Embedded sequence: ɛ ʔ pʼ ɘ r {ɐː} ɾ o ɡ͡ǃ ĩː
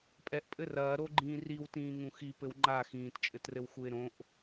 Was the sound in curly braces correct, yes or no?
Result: yes